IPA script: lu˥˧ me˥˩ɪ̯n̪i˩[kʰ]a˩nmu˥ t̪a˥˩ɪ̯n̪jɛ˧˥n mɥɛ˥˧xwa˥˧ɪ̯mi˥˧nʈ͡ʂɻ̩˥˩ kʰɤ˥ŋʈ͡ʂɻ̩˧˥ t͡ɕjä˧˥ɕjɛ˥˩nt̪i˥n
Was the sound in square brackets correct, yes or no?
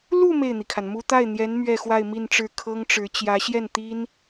yes